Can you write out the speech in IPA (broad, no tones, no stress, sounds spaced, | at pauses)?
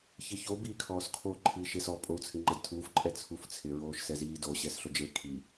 ç ɪ ç o b iː kʰ ɔː s kʰ o ǃʰ iː ʃ e s ɔ pʼ o u̯ t͡sʰ ɪ ŋ͡ǃ a d tʰ uː f ǃʼ ɛ t͡sʰ u f t͡sʰ ɪ ɹ oː ʃ s ɛ z iː d o ɕ ɛ s ɬ o d͡ʒ e kʰ i